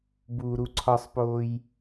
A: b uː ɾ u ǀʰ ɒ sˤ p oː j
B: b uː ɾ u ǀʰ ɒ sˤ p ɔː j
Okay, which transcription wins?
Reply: A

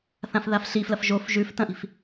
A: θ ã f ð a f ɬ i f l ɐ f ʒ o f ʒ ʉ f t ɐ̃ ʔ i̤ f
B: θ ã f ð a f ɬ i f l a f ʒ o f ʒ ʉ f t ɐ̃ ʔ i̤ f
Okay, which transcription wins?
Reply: A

